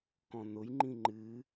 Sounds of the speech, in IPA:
kɔ̃nʊjŋ͡ǃĩ ŋ͡ǃɨ

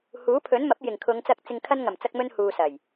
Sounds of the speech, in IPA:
huː˨˥pʰɵ˨˥nmɐ˨˥p̚ jɪ˨˩ŋ kʰʊ˨˧ŋt͡sɐ˧k̚ t͡sɪ˨ŋkʰɐ˧n ŋɐ˨˩mt͡sɐ˧k̚mɵ˧n huː˨ sɐ˨˩j

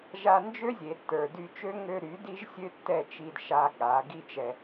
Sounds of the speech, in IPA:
ʒa˧nd͡ʒø˦zʲe˨tːə˞˨ dy˧t͡ʃø˦ ŋø˧ɾy˨˦ di˦ʒsʲø˦tːɛ˦˨t͡ʃi˧d ʃa˧ ɠa˨˦ ɡi˦t͡ʃɛ˧

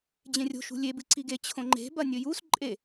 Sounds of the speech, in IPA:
d͡ʑẽrʲo̤ ʃṳlʲeb ɨǀiɡe t͡ɕʰõŋ͡ǃe̤ bɐnʲɵjus ǃʼe

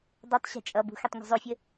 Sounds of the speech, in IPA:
dˤɛtˤ ɕɛ̤t͡ʃʼʌbṳ xytˤŋʷɛ̤zˤofʲə

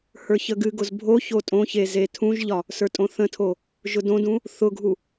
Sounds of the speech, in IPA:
hə˞çəɡɨɡʊz bʱo çotʼõçe zetʰũʒʎɒ | sə˞tʼõθə̃tʰo | ʒʊdõdũ | θʊɡʱu

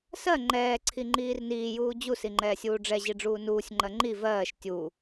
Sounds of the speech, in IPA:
sɜ ŋ͡ǃɛː ǀʰiŋ͡ǃiːrniːjuː d͡ʑusi ŋ͡ǃɛːsʲuːɖ͡ʐɛʑi ɖ͡ʐuːnuːsʲŋ͡ǃɜ ŋ͡ǃi vɜːʃ tʲu

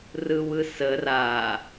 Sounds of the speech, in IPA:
rɯwɯsə ra

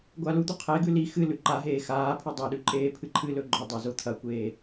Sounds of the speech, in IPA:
ɡʷalud̪u qʰeɡʉ li xɨ lʉǃaɦeː xaːpʰɵ dˤaɗʉ ǃʼeːpʰɨǃʰɨlɵ ɡ͡ǃɵdˤa zot̪ʰɐkʷeː

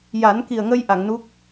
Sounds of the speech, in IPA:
ja˨˩˦nki˨˩ə̯ŋə˧j ʔa˨˩˨ŋnu˦˥k̚

